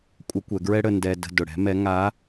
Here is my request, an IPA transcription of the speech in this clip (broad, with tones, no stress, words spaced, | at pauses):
kʷʼə˧˥kʷɛ˩˧ɡɹɛ˥ɽə˧ ndɛ˧də̤˧ dʊ˩ɽɛ̤˧˥mɛ˧˥ ŋa˧˥